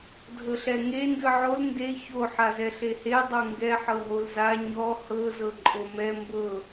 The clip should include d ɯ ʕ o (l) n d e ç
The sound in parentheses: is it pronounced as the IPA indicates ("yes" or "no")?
yes